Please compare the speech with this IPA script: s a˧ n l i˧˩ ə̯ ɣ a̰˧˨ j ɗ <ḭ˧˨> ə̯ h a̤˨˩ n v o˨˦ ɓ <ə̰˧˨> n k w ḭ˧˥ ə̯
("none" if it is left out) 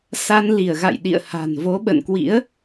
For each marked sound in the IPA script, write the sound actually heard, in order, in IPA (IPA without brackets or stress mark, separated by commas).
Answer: ḭ˧˨, ə̰˧˨